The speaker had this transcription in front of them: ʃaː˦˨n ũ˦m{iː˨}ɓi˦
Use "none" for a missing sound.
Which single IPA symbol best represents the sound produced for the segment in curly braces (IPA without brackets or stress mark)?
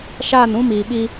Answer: iː˨